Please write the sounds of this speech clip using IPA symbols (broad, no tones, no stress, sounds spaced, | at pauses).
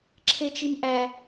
ǁʰ e t͡ʃ i m ʔ æ